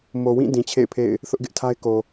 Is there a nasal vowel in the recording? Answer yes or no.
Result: yes